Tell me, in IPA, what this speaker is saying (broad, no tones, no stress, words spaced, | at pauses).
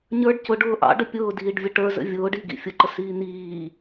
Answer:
ɲə˞ɖ cʊɖʊː ʔɑ̰ɖə pʲʊːdiːɖvʲə ʈə˞zə̰ vʲʊːɖiɡḭ fʲʊǃəsiː n̪iː